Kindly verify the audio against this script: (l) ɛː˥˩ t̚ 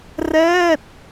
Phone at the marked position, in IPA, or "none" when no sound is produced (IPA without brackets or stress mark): r